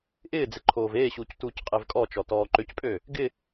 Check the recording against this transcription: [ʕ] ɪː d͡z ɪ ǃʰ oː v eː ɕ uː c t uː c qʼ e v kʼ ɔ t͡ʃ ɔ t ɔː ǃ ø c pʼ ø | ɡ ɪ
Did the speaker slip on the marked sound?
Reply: yes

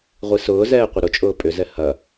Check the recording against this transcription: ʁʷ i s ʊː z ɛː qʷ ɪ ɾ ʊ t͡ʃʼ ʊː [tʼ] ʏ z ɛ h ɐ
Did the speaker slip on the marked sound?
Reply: yes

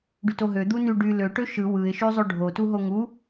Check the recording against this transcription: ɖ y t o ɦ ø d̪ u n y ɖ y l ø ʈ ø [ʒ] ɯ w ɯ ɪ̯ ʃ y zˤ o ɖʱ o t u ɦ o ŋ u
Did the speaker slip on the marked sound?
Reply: yes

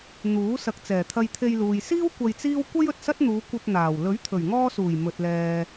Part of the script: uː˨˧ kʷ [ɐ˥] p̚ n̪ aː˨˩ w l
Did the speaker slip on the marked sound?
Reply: yes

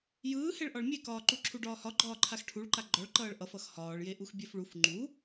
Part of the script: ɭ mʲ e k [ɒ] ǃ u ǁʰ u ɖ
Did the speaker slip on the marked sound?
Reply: yes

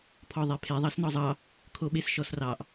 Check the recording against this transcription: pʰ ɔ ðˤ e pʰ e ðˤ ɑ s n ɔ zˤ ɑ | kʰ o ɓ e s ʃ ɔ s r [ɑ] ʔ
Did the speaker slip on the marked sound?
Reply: no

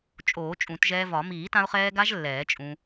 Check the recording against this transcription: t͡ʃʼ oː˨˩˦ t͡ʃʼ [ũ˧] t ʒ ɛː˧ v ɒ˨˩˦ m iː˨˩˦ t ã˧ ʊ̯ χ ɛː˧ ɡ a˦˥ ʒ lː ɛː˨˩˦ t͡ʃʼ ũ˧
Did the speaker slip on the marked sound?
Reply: yes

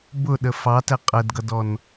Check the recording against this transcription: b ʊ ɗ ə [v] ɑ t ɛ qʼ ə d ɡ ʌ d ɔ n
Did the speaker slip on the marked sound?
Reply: yes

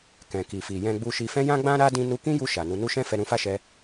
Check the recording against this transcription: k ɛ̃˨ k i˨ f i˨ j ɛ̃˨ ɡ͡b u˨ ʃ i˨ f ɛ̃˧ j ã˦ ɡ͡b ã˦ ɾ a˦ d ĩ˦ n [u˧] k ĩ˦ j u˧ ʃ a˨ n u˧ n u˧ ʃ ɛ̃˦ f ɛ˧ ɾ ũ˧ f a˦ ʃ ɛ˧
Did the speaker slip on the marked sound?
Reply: no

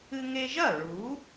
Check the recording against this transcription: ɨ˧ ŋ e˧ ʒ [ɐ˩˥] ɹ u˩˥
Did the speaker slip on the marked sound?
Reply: yes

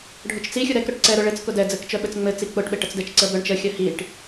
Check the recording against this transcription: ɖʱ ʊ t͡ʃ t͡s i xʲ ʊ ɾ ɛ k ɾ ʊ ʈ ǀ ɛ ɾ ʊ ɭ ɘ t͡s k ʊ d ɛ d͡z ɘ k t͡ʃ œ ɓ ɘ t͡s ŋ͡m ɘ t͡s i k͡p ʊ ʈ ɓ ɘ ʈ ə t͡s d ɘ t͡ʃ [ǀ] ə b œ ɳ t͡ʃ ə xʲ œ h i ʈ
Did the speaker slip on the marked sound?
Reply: no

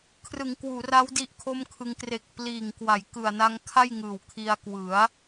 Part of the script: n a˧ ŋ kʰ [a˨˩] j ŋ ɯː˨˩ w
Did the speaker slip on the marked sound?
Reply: yes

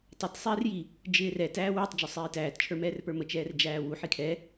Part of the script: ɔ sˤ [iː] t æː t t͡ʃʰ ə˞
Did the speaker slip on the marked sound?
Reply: no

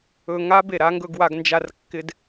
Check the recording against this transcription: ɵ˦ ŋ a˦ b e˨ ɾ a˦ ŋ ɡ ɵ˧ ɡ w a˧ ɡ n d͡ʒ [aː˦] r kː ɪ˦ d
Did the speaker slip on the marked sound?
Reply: yes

